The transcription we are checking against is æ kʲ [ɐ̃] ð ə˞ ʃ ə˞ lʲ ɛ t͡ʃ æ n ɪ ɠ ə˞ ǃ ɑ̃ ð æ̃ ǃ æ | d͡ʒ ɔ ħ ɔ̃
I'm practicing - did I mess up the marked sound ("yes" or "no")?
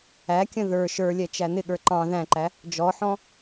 yes